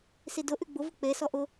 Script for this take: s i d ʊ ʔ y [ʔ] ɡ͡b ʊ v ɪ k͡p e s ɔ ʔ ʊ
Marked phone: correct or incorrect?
incorrect: none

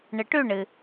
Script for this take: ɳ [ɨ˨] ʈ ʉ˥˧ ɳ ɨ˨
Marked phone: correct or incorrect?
correct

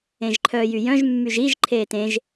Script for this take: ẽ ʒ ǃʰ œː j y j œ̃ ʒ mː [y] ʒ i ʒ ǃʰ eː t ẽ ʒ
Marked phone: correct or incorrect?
correct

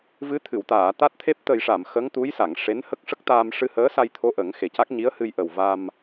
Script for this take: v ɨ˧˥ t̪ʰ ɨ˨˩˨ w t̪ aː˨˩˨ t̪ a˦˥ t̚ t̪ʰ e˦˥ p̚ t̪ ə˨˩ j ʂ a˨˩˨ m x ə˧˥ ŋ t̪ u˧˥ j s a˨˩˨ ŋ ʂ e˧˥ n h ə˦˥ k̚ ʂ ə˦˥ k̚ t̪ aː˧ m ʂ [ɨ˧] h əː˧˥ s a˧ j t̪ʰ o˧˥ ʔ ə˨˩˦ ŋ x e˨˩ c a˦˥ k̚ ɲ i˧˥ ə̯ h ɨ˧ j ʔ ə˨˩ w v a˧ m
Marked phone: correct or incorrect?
correct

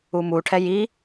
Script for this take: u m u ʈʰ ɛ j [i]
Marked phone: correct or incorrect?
correct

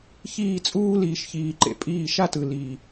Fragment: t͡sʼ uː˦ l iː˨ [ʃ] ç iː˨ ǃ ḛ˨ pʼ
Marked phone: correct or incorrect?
correct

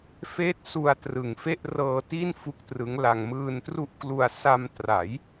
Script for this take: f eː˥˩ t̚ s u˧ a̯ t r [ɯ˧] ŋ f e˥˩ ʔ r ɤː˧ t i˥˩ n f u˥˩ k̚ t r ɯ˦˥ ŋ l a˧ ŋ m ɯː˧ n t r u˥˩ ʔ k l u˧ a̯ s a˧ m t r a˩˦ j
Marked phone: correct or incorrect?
incorrect: ɯ˨˩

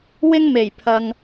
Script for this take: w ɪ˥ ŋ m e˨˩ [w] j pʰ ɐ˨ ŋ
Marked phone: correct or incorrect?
incorrect: none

